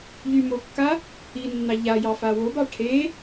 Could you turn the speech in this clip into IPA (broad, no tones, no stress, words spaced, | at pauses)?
ʎymokːa | inːɑ ʎajɑ fawobɑ ʈʰe